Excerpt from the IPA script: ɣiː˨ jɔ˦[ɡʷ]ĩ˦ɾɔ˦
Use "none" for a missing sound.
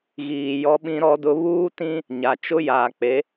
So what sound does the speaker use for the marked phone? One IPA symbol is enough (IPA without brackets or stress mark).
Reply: ɓ